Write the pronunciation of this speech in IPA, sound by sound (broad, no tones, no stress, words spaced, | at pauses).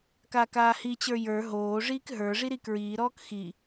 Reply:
kaːkaːhit͡ɕə˞ jə˞ ɦoː ʐiːkɦə˞ʐi ɾikɹiːɾɔːk xi